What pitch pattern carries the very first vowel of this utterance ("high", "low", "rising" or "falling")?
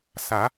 rising